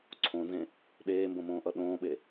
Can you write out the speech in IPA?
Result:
ǀʰõnzẽ | ɗeːmbõmõːʔʌ ɗõːɓe

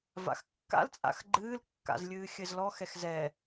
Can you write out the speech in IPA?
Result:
va̰xkːa̰l t͡sʼa̰xɡ͡ǃɨːl kːa̰zlʲɨːxʲɘzlɔ xɛxzɛ

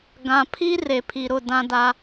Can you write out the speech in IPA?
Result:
ɡã˨pʰi˦ re˨pʰi˨ɾʊ˦˨ dã˦da˦

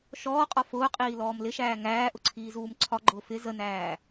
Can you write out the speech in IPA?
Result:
ʃɔːqʼɒ fʊːqʼiːlɔːm lɪʃæː ŋæːʔʊǀʰiːzuːm ǀʰɒɡ͡ǃʊː fɪ zənæː

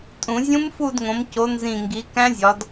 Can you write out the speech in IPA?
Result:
tʼũ˧˩˧ zʲũ˦˥mfu˦˨dŋõ˩˧m co˩˧ nzĩ˨˩ŋɡi˩˧ kæ̃˦˥zʲɒ˩˧d

